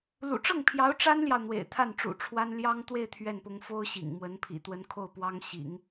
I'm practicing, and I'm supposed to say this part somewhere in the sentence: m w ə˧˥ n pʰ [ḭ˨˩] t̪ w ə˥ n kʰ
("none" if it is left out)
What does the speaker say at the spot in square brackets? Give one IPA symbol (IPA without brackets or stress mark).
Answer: ḭ˨˩